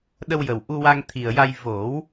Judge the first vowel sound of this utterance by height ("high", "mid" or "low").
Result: mid